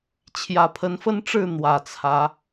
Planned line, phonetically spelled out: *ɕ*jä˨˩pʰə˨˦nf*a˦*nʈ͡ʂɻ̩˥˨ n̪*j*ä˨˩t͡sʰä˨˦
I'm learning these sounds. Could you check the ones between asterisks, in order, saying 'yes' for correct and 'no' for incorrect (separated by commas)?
no, no, no